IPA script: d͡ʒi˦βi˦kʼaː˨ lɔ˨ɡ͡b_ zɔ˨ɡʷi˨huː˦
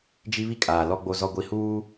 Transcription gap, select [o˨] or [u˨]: o˨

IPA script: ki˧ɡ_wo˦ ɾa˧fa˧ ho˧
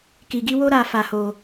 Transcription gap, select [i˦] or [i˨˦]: i˦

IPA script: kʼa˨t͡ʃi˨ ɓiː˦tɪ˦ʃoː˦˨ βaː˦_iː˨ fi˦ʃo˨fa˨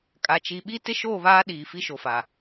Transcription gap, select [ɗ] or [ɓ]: ɗ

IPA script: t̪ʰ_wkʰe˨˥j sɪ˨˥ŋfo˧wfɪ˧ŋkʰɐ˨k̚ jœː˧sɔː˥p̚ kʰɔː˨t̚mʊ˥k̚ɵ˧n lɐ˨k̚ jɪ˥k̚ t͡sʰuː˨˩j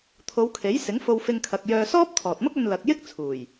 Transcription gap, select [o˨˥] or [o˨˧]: o˨˧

